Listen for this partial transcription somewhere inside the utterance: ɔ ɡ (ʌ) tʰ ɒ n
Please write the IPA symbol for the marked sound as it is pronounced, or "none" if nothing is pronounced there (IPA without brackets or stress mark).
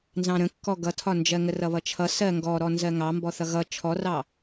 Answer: ʌ